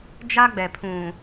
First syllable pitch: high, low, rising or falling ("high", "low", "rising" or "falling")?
high